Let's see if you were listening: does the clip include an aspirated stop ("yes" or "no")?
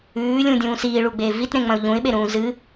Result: no